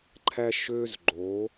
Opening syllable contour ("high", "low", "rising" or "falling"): high